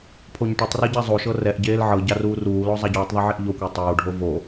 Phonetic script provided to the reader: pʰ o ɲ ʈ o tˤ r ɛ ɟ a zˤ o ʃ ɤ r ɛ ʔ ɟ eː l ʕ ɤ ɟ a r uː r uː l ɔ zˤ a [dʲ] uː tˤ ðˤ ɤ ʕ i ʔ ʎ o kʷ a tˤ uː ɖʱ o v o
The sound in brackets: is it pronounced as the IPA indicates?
no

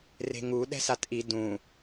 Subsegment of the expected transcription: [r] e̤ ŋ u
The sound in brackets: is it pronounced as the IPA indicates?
yes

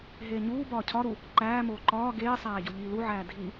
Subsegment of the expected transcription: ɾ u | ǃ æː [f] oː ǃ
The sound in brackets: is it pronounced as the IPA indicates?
no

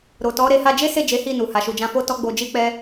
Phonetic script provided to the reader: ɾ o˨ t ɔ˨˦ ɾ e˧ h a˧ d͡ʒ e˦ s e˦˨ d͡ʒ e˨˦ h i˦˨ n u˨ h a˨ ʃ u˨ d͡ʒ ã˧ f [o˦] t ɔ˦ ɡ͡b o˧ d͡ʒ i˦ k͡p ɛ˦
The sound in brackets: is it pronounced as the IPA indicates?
yes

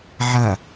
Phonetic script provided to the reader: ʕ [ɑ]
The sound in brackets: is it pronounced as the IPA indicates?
no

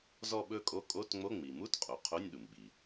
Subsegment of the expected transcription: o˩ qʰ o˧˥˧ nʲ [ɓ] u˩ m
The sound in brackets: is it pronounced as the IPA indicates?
no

